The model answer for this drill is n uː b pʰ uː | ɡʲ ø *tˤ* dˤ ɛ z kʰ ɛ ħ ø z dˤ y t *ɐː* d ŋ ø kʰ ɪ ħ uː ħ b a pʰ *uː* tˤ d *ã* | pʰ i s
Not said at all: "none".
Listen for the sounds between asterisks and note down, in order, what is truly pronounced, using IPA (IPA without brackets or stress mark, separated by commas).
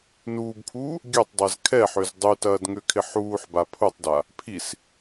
tˤ, ɐː, u, a